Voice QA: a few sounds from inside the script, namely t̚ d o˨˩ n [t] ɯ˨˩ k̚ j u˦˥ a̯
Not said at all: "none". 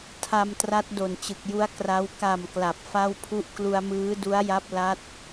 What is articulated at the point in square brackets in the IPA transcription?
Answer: t͡ɕ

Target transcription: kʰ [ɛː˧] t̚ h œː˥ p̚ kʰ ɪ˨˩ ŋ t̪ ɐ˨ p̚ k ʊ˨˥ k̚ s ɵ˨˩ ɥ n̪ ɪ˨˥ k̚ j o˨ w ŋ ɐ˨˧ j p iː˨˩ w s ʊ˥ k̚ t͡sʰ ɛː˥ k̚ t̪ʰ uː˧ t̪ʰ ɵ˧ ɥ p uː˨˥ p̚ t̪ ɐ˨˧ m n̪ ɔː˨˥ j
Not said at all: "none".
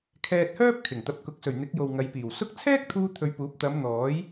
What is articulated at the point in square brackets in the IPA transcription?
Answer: ɛː˧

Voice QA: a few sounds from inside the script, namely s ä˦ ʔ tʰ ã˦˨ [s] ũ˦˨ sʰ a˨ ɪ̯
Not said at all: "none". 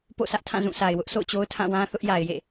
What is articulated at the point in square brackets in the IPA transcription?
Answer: z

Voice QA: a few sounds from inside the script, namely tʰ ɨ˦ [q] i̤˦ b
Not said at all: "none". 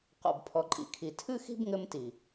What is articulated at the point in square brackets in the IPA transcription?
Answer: x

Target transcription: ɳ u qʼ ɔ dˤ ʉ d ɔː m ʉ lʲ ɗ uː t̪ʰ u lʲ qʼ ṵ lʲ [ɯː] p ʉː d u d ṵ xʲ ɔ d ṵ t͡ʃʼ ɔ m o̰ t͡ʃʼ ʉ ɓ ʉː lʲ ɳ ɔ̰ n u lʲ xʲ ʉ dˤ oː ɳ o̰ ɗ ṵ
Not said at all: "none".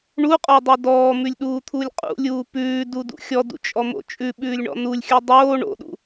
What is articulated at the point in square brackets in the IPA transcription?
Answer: uː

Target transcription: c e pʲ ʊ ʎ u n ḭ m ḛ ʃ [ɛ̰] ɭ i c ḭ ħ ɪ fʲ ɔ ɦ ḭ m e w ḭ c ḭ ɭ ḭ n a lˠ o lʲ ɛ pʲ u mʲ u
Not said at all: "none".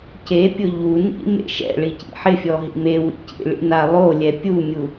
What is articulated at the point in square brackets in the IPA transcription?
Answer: ɛ̰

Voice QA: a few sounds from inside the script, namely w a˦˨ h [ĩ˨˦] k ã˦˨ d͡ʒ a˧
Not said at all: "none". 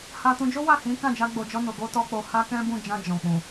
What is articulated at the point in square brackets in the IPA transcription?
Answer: ĩ˨˦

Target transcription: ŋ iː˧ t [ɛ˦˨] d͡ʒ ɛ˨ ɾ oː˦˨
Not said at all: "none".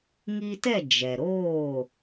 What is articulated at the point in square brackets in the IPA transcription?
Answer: ɛ˦˨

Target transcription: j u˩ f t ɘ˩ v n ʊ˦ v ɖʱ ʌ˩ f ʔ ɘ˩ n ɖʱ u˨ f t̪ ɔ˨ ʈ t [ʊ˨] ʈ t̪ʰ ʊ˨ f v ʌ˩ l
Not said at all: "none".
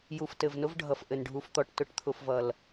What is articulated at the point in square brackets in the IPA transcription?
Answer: ʊ˨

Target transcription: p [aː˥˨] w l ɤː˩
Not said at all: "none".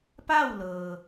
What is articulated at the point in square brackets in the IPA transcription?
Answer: a˥˨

